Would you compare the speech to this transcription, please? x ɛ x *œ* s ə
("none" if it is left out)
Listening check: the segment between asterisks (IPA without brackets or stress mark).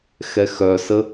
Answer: œ